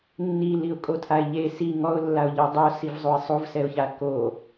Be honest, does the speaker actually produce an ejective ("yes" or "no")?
yes